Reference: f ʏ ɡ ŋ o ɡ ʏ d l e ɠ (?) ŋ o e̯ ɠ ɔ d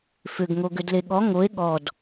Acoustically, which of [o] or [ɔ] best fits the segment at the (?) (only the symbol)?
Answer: ɔ